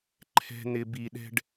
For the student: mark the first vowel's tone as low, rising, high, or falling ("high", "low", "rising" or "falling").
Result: low